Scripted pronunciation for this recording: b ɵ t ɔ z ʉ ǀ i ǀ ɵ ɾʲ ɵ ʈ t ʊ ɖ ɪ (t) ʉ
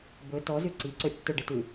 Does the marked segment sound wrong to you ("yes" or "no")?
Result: no